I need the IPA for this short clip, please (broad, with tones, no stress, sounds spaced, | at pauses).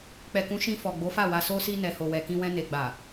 k͡p ɛ˨ k ũ˨˦ ʃ ĩ˧ f ɔ˨ ɡ͡b o˨˦ f a˦˨ w a˨ s o˧ s i˧ n ɛ˨ h o˨ w ɛ˨ k ĩ˧ w ɛ̃˧ n e˨ ɡ͡b a˨